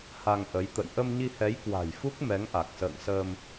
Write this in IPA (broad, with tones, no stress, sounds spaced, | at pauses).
h a˧ ŋ ʔ ə˨˦ j t̪ ə̰˧˨ j ʔ ə˧ m ɲ i˧ h ɛ˨˦ j k w a̤˨˩ j f u˦˥ k̚ m ɛ˨˦ ŋ ʔ a˨˩ k̚ s ə̰ː˧˨ ŋ s əː˧ m